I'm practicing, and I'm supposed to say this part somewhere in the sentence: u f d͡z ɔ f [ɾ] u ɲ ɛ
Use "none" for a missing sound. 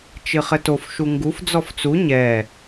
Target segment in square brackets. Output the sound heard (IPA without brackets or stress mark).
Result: t͡s